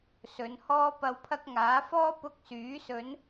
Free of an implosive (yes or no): yes